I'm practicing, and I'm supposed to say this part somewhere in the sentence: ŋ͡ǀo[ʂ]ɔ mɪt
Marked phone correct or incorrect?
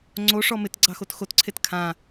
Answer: correct